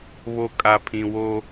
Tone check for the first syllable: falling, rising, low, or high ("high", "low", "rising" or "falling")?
low